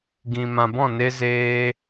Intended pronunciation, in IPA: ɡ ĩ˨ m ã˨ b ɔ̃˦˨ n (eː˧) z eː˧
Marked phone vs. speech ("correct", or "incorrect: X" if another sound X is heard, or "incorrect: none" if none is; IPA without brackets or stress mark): incorrect: e˧